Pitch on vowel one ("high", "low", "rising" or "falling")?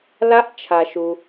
rising